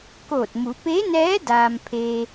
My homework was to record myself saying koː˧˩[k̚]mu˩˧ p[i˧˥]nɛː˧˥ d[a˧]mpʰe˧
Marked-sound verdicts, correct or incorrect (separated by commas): incorrect, incorrect, incorrect